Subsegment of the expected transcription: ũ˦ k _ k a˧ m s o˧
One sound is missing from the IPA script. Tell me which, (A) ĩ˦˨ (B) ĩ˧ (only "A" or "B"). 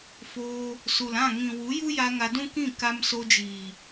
A